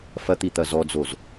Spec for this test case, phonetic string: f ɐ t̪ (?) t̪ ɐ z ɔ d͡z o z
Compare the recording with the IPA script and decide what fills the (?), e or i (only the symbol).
i